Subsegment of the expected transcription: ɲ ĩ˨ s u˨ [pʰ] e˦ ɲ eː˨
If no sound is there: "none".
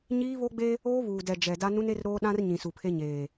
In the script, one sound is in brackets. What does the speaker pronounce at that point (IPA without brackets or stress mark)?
pʰ